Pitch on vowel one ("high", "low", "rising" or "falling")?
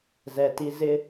low